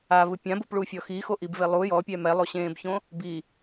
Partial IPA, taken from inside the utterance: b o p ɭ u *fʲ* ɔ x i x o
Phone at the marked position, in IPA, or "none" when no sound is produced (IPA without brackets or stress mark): fʲ